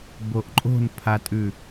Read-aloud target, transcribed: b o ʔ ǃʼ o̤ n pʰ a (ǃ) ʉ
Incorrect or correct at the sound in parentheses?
incorrect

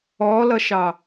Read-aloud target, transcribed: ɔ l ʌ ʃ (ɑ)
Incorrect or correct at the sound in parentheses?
correct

